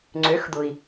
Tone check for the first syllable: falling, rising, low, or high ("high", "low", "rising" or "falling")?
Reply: rising